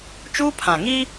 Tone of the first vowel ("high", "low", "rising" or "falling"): high